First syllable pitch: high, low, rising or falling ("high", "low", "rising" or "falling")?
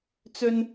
high